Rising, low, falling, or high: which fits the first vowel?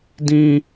high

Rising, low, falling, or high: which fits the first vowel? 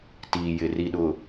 low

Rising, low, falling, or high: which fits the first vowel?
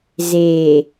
low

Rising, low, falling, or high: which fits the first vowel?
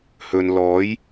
low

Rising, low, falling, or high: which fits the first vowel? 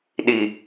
low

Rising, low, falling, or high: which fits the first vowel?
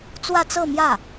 falling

